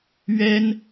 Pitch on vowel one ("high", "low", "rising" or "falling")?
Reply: high